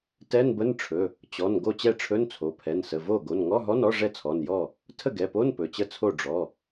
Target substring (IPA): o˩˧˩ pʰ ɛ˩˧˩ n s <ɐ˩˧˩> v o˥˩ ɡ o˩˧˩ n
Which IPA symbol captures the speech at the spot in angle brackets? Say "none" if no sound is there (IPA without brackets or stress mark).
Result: ə˩˧˩